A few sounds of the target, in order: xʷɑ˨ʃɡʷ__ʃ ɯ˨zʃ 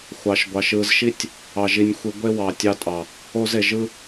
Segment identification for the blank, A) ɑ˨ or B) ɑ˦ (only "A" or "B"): A